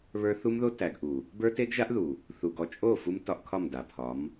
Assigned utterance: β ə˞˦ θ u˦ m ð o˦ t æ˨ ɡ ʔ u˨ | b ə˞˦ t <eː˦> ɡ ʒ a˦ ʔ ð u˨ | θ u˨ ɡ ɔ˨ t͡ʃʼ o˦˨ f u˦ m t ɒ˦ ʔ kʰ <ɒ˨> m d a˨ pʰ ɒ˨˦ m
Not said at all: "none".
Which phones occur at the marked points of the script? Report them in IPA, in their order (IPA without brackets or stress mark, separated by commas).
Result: e˦, ɒ˦˨